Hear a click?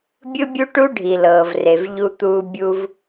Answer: no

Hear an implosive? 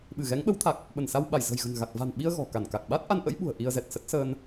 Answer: yes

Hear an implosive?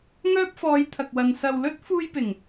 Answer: no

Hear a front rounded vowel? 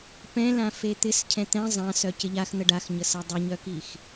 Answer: yes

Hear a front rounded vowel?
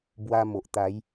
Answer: no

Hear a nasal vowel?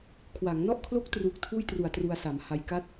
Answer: no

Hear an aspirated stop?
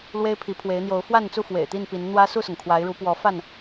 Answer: yes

